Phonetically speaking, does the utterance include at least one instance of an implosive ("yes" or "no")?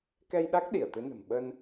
yes